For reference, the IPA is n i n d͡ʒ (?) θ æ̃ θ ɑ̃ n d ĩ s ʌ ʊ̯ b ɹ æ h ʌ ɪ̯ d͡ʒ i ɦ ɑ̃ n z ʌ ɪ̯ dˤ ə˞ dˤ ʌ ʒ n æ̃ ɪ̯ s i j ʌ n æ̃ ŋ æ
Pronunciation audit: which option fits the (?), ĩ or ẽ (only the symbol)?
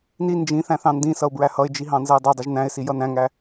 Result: ĩ